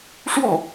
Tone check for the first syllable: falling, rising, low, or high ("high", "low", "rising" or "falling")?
falling